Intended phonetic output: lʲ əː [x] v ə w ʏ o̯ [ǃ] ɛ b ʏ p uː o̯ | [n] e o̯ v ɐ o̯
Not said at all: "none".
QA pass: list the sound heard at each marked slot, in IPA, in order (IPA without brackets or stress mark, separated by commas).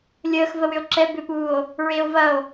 x, ǁ, ɹ